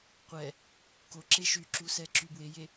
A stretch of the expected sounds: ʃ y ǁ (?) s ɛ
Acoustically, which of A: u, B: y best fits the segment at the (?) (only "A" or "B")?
A